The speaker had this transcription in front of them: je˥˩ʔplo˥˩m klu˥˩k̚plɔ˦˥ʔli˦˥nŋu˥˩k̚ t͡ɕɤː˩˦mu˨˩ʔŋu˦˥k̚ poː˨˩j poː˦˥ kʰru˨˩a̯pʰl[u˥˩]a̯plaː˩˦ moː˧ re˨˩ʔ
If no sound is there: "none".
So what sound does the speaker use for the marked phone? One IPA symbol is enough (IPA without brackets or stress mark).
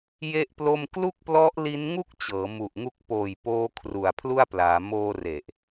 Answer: u˥˩